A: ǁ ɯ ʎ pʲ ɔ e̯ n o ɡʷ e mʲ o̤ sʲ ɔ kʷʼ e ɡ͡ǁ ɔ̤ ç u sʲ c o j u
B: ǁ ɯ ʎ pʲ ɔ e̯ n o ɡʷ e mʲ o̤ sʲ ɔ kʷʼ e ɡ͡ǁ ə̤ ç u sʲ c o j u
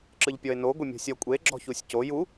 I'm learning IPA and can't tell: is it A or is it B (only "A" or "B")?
A